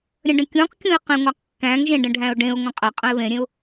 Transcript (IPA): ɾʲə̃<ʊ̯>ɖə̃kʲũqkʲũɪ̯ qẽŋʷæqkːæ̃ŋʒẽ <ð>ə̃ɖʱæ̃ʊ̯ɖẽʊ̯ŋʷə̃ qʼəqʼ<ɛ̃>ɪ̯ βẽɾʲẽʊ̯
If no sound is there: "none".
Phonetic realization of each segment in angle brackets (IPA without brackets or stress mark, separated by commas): none, ɖ, ə̃